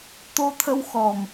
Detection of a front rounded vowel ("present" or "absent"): absent